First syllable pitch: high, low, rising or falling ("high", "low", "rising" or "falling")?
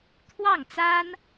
falling